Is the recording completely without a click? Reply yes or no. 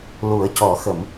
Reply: yes